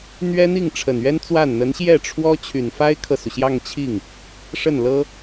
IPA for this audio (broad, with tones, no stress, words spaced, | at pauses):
n̪ɥɛ˥n̪i˥˩ŋʈ͡ʂʰə˨˩n ɥɛ˥nt͡swa˥˩n n̪ə˧˥nɕjɛ˥˩ʈ͡ʂʰwɔ˥ t͡ɕʰy˨˩nfa˥ɪ̯kʰɤ˨su˩ ɕjɑ˥˧ŋt͡ɕʰi˥˩ŋ | ʂə˥˩nlɤ˥